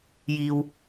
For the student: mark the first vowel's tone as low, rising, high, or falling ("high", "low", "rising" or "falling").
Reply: low